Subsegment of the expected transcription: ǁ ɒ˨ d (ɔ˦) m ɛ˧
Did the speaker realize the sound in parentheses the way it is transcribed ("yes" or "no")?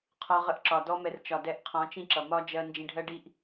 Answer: yes